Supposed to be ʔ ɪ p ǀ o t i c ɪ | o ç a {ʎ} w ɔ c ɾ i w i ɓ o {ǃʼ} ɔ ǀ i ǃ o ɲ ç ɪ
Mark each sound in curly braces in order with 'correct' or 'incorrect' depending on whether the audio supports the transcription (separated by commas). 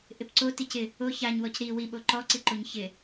incorrect, incorrect